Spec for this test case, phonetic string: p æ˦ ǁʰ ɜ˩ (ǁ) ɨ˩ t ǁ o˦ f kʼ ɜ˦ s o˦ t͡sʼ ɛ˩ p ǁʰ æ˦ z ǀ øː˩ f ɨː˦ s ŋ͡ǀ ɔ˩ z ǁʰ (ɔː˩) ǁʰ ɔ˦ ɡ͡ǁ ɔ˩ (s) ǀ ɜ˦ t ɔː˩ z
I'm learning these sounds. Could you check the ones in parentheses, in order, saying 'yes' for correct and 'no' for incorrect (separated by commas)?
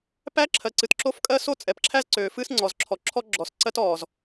no, no, yes